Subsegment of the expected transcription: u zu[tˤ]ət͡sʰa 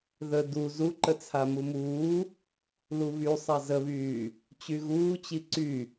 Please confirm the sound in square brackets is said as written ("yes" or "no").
no